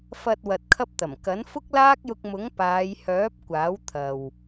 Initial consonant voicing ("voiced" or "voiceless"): voiceless